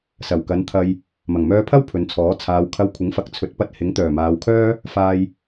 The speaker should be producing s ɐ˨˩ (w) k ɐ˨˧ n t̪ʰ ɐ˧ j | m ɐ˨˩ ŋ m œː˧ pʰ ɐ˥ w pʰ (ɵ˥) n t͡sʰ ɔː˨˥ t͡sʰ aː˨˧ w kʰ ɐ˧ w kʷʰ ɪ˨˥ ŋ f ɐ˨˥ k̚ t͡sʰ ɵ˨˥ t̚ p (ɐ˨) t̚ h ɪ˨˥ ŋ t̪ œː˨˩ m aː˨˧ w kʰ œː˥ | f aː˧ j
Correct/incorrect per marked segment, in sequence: correct, incorrect: ɵ˨˧, incorrect: ɐ˧

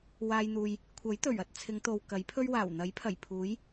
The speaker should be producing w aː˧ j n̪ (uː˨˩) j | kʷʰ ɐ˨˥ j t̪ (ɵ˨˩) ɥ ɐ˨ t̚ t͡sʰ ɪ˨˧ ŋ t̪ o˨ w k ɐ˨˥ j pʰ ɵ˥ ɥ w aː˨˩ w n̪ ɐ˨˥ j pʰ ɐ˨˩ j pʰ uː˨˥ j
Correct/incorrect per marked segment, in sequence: incorrect: uː˨, correct

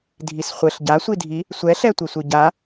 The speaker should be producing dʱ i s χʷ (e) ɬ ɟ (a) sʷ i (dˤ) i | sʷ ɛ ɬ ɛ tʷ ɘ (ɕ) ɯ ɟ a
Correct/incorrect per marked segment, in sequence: incorrect: ɘ, correct, incorrect: dʱ, incorrect: sʷ

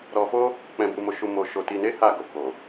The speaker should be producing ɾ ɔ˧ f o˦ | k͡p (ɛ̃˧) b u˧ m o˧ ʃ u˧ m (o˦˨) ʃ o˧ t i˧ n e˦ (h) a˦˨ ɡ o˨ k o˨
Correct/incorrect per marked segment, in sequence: correct, incorrect: o˧, correct

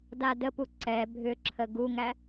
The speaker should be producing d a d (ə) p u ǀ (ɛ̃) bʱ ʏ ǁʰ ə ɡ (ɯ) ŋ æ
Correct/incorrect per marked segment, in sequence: correct, incorrect: ɛ, incorrect: u

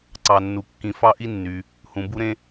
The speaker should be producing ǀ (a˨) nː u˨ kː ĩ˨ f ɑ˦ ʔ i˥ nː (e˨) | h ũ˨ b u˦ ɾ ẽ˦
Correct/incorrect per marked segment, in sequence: incorrect: ɑ˨, incorrect: y˨

